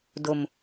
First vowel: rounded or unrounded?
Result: rounded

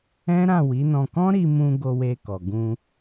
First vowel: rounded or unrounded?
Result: unrounded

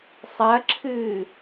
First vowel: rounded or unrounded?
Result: unrounded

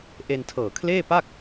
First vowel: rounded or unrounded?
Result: unrounded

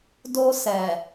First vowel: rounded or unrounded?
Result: rounded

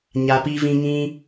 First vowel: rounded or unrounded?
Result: unrounded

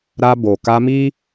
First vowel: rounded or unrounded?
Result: unrounded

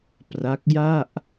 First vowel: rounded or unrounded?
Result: unrounded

